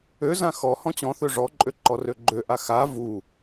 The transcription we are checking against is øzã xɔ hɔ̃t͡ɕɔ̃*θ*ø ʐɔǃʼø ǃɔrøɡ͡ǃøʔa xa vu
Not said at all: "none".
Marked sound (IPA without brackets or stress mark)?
θ